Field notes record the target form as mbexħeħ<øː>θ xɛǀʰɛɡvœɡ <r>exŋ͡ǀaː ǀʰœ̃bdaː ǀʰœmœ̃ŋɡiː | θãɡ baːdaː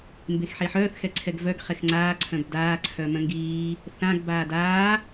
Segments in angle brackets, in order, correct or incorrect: incorrect, incorrect

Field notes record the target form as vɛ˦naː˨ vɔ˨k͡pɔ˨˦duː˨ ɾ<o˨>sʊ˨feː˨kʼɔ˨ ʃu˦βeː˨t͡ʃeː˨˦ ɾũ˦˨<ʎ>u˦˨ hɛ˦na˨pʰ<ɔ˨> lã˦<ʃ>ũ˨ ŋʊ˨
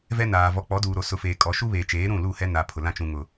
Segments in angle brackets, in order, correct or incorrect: correct, incorrect, incorrect, incorrect

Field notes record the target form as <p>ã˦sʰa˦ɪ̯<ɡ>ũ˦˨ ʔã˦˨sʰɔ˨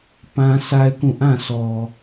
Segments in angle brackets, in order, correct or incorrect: correct, incorrect

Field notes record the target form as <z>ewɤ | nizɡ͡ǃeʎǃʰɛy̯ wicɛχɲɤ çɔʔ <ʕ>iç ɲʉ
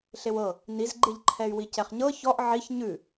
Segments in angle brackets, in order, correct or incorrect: incorrect, correct

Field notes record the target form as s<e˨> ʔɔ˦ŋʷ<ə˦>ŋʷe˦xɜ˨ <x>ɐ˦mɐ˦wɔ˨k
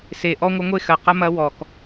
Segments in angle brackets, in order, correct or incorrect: correct, correct, incorrect

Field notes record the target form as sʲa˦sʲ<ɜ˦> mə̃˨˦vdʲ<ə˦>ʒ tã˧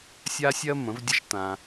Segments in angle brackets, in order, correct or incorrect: correct, correct

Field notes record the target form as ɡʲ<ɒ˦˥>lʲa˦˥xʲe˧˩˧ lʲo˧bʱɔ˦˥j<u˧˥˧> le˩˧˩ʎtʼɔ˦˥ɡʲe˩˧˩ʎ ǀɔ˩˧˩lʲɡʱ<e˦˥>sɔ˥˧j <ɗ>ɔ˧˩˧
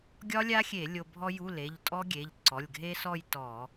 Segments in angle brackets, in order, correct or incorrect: correct, correct, correct, incorrect

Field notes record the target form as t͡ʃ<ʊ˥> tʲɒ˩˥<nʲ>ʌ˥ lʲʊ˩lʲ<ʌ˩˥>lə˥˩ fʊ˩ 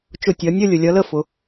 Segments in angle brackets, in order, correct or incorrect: incorrect, correct, correct

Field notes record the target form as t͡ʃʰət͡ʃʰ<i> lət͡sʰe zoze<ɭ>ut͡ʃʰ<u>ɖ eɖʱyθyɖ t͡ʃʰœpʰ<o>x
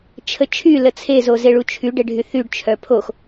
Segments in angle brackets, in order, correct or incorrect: incorrect, correct, incorrect, correct

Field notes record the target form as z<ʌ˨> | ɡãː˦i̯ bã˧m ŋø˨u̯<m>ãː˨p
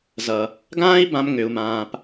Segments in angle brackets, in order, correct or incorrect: correct, correct

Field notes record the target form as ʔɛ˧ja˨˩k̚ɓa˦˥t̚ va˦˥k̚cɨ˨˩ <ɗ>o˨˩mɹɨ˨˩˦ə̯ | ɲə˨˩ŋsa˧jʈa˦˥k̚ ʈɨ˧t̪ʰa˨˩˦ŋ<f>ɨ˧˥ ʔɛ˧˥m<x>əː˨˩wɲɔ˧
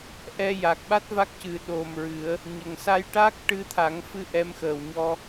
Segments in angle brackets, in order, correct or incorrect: correct, correct, correct

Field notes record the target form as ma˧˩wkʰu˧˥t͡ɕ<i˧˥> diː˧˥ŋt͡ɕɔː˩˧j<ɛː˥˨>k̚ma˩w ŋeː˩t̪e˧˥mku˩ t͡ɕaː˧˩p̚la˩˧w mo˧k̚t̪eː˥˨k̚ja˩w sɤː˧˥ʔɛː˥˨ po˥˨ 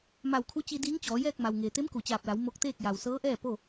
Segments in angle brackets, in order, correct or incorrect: incorrect, correct

